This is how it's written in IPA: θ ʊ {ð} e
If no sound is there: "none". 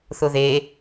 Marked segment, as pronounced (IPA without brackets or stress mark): ð